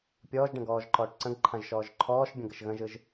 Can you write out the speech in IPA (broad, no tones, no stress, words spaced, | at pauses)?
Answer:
pʲɔːʒɖə̃ ɡɔːʒǃɔːʈǀə̃ɡǃʰãʒ ʃɔːʒǃʰɔːʃbʲə̃ ɡəʃɣə̃ʒɯʒ